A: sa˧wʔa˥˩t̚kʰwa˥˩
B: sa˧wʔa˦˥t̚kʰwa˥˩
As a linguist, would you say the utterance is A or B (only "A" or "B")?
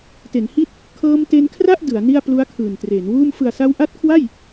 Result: B